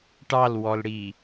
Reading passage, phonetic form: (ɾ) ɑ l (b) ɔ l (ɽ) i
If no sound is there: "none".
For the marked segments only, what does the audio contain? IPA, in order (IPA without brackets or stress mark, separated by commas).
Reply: ʈ, w, ɽ